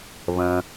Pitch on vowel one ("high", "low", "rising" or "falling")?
low